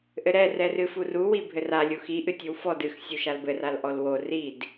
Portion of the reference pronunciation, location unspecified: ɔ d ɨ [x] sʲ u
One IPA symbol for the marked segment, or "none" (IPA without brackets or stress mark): x